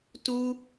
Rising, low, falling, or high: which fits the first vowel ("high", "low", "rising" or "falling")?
high